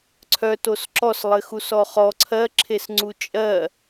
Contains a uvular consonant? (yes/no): yes